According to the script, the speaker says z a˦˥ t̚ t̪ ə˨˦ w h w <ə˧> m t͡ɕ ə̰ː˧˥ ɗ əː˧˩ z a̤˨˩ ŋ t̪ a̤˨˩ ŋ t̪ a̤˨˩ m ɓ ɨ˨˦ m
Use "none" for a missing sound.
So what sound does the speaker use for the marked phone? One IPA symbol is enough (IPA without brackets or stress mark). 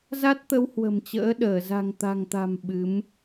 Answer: ə̤˨˩